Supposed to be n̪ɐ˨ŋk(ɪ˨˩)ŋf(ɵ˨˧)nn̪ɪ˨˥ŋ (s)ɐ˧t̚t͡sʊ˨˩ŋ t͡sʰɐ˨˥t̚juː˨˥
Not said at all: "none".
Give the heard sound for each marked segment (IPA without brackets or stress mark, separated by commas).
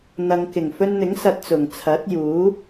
ɪ˨˩, ɵ˧, s